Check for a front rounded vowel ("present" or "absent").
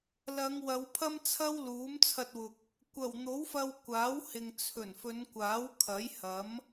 absent